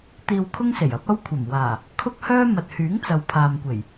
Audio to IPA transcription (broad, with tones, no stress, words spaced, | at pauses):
t̪iː˧wkʰʊ˥ŋse˨˩j ɐ˨˥p̚ɐ˥wkʷʰɐ˨˩m waː˨˩ | kʰʊ˥k̚hœː˥ mɐ˨t̚hyː˨˥ŋt͡sɐ˨w pʰaː˨mkʷe˨˩j